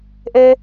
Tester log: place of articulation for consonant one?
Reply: glottal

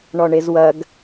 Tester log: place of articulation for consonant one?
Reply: retroflex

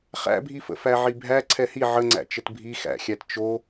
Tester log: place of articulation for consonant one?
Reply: uvular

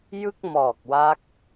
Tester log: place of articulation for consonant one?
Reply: palatal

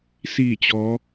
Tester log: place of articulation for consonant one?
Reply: alveolar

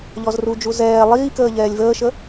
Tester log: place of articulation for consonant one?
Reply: palatal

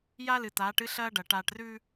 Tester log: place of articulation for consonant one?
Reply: palatal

